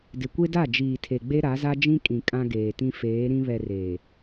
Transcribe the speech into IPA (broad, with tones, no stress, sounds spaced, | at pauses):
d ɪ˨ kʷ e˦ d a˦˨ d͡ʒ iː˨ tʰ e˨ ɡ͡b e˦ ɾ a˨˦ z a˦ d͡ʒ ĩ˦ kʼ ĩ˨ kʼ ã˦ ɡ eː˨ t ĩ˦ f eː˨˦ ɾ ĩ˦ β ɛ˨ r eː˨